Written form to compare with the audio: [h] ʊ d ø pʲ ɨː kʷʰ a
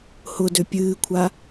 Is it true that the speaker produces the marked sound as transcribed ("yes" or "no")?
yes